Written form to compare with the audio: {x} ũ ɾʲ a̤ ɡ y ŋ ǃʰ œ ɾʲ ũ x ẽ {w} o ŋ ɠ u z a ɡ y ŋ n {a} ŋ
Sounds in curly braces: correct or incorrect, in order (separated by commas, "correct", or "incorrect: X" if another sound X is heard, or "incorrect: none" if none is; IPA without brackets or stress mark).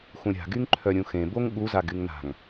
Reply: correct, incorrect: b, incorrect: a̤